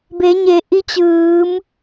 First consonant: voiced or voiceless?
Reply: voiced